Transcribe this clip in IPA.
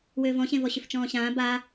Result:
w ʏː v ɔ̃ ɕ ẽ v ɔ ɕ ʏ f t͡ʃ ɔ̃ː ɕ ãː b a

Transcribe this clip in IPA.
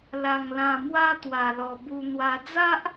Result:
l a˧ ŋ l ã˧ m w a˦ t̪ w a˧ l ɔ˧ b u˧ n̪ w a˧ d͡z a˦ ʔ

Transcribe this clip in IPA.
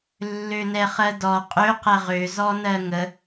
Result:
lː ø n ɛ χ ɜ d ɔ qʼ ø q ɛ ʁ ø z ɔ n ɜ ŋ ə

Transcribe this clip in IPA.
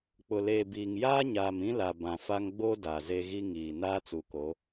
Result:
k͡p ʊ˨ l eː˨ b iː˨ ŋ j aː˦ ɲ aː˨ m ĩ˦ l a˨ b ã˨ f a˦ ŋ ɡ͡b o˦ d a˨ z e˦ ɣ i˦ ŋ iː˨ n aː˦ t͡s u˨ k o˨˦

